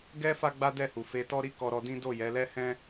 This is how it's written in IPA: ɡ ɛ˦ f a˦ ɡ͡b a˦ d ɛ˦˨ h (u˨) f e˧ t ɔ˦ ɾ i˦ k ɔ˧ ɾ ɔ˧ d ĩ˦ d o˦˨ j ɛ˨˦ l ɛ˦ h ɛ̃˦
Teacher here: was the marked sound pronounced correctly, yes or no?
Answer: yes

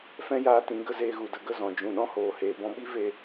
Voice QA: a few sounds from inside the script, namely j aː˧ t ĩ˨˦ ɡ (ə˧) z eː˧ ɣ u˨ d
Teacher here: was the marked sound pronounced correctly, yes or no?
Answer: yes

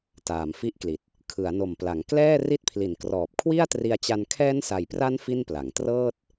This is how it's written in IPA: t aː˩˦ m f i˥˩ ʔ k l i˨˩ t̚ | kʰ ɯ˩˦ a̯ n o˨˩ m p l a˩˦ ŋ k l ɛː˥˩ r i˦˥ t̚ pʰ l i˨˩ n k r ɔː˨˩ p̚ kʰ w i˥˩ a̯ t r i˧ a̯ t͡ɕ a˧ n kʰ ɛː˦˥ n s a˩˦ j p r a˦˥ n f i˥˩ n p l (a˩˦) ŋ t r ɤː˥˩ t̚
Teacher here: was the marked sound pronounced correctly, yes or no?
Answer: yes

